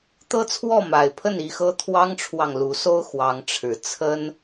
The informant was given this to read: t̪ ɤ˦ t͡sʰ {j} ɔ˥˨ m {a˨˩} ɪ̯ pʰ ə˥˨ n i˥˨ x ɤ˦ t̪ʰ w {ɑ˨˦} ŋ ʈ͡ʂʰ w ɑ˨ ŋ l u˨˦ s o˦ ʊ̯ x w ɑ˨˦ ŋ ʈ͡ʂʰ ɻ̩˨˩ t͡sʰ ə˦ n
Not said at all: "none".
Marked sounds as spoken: w, a˨˩, ɑ˦

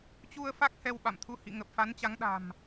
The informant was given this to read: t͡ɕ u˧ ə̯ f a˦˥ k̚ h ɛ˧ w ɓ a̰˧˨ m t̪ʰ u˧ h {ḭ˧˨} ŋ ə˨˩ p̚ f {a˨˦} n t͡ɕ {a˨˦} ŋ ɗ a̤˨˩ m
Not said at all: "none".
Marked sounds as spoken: ḭ˧˨, a˨˦, a˨˦

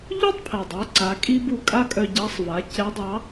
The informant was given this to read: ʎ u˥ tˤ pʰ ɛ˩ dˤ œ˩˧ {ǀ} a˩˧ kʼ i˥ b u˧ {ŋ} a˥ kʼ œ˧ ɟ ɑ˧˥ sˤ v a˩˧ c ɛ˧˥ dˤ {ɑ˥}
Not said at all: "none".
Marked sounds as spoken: ǀ, kʼ, ɑ˧˥

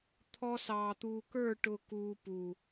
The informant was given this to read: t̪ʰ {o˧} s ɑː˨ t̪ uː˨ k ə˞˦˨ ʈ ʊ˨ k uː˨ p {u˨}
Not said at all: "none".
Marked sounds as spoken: ɔ˧, u˨

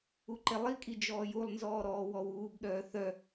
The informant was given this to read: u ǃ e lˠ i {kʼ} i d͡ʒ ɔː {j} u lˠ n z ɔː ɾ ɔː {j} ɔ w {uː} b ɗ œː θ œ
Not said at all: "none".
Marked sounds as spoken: kʼ, j, w, uː

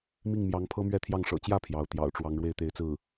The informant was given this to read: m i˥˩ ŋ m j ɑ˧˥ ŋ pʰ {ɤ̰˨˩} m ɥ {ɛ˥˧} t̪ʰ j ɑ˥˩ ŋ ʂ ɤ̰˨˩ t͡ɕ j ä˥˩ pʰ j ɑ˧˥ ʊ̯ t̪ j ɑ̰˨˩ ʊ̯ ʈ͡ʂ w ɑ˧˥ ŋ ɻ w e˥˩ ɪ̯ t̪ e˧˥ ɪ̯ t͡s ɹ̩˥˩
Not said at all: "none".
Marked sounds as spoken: ɤ˥, ɛ˥˧

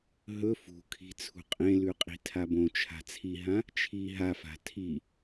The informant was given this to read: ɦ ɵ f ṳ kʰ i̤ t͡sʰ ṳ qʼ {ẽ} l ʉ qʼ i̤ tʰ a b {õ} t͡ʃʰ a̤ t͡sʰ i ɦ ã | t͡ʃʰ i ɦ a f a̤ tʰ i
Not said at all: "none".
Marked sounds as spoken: ẽ, õ

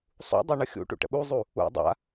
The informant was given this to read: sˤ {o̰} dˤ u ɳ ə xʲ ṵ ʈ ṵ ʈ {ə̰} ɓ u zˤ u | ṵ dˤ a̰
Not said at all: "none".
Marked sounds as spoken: ṵ, ə̰

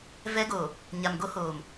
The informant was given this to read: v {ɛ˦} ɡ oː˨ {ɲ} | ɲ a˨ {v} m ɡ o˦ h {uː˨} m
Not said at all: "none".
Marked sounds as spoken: ɛ˦, none, none, oː˨

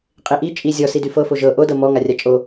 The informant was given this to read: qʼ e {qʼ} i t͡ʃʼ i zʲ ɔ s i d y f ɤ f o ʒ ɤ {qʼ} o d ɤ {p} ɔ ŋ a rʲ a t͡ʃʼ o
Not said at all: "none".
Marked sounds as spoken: ʔ, ʔ, m

